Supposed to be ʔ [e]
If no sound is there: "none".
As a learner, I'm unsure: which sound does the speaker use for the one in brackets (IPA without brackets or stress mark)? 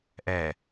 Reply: ɛ